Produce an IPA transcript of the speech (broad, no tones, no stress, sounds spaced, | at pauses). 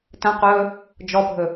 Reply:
t ə̃ q ɵː | d͡ʒ ɔ bʱ ɵ